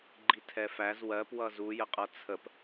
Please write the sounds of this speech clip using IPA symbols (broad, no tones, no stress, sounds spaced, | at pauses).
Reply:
ɡ͡ǃ i tʰ ɛ f æ z w ɜ p w ʌ z u j ə qʼ ʌ t͡sʰ ə p